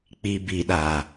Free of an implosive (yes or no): no